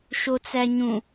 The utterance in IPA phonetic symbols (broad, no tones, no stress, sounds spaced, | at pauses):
ʃ o t͡s æ ɲ ũ